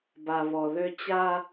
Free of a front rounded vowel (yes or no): no